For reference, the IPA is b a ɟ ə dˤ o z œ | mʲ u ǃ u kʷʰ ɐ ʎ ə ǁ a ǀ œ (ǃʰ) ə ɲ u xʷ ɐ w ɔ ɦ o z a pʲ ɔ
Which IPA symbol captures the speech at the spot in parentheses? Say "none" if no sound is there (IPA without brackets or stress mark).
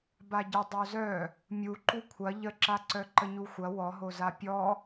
ǃ